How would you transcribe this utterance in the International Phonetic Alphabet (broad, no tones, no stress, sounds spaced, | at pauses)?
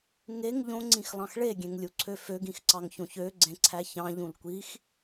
ŋ e ŋ ʎ õ ŋ͡ǀ ĩ x lˠ ɑ̃ x ɭ e ɡʲ ẽ ŋ lʲ u ǀʰ ø f ø ɡ ĩ x ǀ ɑ ŋ ç õ ç ø ɡ͡ǀ ẽ ǀʰ æ ç ɑ̃ ʎ ũ l kʷ i x